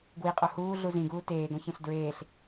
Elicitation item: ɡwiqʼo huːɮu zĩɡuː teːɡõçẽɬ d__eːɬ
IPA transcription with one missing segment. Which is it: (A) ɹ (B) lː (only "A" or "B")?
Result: A